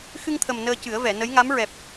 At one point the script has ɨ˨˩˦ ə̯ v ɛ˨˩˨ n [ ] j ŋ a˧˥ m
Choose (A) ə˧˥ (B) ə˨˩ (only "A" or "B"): A